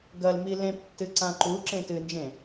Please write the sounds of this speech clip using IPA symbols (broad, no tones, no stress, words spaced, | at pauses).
ɡɐlmi lẽptːɨ ǀãǃuǁẽ tɨnd͡ʒẽ